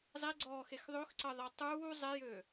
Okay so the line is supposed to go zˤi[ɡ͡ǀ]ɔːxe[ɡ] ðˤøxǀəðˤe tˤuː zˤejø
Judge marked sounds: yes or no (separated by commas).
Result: yes, no